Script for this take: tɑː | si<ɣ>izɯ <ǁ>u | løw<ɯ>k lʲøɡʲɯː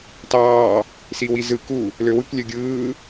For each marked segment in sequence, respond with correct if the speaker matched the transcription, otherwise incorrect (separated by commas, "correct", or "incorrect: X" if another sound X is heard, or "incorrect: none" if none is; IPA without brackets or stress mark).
incorrect: w, incorrect: k, correct